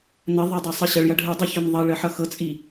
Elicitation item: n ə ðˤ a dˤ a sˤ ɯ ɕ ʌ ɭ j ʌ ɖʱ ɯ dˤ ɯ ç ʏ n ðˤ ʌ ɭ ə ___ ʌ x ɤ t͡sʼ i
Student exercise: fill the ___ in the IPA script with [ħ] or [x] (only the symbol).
ħ